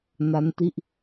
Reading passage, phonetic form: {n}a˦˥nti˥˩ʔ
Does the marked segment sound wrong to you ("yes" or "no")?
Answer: no